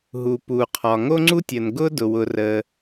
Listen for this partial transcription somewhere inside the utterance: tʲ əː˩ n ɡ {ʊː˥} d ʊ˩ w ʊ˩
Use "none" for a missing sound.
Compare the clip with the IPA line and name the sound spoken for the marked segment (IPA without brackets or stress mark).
ʊː˥